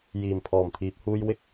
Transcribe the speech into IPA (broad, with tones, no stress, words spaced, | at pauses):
jiː˨˩mpʰɔː˨˩mt̪ʰiː˨p̚huː˧j wɪ˥k̚